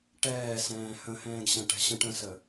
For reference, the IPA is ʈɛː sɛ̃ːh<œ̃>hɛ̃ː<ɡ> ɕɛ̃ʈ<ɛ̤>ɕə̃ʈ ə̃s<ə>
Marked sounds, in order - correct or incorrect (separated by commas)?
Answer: incorrect, correct, correct, correct